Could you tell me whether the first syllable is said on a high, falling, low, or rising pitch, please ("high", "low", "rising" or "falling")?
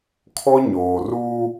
high